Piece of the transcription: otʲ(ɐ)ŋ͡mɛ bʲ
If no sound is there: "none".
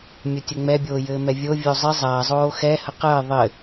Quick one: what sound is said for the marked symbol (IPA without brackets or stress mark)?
ə